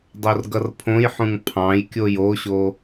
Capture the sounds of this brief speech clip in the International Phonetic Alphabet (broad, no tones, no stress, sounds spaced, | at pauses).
dˤ o r ɡ ʌ r pʰ õ j ħ ũ ŋ pʰ ɑ̃ j kʲ o j o ɕ o